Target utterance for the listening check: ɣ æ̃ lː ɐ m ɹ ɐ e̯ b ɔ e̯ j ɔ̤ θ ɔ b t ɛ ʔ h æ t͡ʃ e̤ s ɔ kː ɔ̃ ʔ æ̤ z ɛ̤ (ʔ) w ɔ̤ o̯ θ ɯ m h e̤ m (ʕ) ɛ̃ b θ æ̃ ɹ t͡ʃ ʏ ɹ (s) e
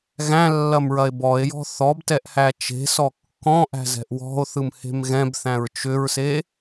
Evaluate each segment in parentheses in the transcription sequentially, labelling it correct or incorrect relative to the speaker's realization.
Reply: correct, incorrect, correct

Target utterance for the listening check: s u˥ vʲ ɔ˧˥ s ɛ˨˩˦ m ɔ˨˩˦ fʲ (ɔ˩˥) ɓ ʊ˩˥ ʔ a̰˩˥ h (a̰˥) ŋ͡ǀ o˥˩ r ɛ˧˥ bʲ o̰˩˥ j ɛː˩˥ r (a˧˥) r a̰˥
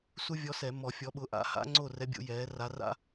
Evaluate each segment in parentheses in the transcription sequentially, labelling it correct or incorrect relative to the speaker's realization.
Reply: correct, incorrect, correct

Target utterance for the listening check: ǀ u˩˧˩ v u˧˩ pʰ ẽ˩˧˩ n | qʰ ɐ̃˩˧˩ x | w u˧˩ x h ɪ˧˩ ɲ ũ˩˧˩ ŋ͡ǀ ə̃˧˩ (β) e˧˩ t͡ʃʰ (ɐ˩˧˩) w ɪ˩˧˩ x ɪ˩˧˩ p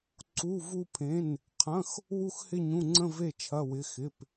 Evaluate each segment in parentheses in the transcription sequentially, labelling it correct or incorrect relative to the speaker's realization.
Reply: incorrect, correct

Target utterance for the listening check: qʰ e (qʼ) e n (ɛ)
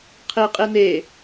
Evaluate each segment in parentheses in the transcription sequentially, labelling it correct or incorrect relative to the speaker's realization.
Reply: correct, incorrect

